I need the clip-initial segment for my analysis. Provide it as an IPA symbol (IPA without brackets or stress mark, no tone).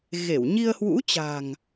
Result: ɣ